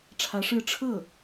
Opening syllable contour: rising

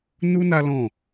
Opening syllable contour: high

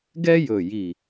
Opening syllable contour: high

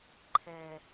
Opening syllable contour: low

